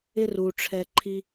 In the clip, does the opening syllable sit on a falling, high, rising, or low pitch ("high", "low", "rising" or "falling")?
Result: high